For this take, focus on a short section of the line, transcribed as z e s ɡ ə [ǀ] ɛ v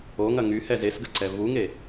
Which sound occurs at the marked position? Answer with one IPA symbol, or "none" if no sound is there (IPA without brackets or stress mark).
ǀ